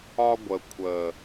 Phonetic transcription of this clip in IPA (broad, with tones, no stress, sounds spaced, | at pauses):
ɒ˧ ɡʷ ə˨ kʷʰ ə˨